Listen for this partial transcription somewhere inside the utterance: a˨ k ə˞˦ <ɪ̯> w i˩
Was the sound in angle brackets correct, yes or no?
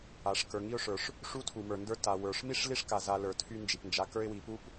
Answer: yes